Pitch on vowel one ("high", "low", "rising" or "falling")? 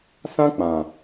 high